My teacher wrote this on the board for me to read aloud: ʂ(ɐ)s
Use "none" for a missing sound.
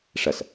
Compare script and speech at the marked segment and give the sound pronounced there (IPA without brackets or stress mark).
ɐ